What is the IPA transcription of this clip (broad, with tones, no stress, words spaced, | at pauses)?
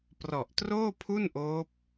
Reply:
prɔ˨˩ʔtroː˥˩pʰu˥˩nʔoː˦˥p̚